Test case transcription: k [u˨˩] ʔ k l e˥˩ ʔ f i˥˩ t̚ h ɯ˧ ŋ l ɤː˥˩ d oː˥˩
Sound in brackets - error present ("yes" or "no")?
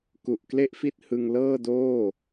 no